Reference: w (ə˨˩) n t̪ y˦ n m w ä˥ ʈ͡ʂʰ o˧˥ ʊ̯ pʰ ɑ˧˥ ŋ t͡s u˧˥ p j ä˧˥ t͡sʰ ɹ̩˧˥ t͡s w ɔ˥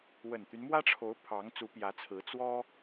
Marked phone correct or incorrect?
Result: correct